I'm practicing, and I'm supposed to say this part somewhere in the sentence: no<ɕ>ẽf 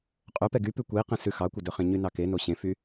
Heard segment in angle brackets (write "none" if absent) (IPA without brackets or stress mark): ɕ